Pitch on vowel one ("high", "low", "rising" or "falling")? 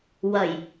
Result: low